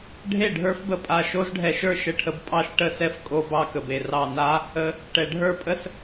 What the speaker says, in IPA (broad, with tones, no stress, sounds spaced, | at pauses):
ɖʱ e˥˩ ɖʱ ə˞˦˥ f b ə˧˩ pʼ a˧˩ ʃ o˦˥ z ɖʱ ɛ˧ ʃ ə˞˥˩ ʃ ə˦˥ ʈʰ ə˧ b pʼ ɑ˥˩ ʃ ʈ ə˦˥ s ɛ˦˥ f kʼ o˧ b ɑ˧ k ə˩ b e˩ r ɑ˧˩ n a˦˥ | ə˧ | ʈ ɛ˩ ɖʱ ə˞˥˩ pʼ ə˦˥ s